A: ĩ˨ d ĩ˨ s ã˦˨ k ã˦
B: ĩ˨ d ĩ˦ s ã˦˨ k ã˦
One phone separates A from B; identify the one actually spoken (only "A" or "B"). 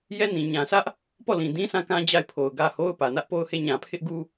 B